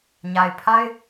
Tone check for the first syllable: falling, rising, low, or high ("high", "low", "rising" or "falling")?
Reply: low